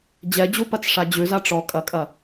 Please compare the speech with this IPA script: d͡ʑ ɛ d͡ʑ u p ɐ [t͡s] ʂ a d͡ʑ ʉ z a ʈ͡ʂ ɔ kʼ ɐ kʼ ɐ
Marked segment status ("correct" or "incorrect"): correct